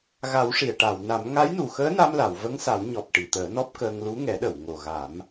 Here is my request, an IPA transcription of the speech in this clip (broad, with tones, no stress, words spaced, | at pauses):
ɣa˨˩˦wʂi˨˩˨ə̯ʈa˨˩˨wna˨˩˦m ŋa˧˥jnu˨˩xəː˧˥na˧m la˨˩˨wvə˧˥ŋsa˨˩˦wɲɔ˨˩p̚ ʈi˨˩˨t̪əː˨˩˦nɔ˦˥p̚kəː˧ŋ lu˧˥ŋɛ˨˩˦ɗə˨˩˨w ŋo˨˩ɣa˨˩˦m